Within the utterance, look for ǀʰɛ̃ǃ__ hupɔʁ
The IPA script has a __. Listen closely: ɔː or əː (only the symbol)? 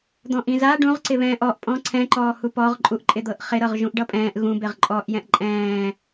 ɔː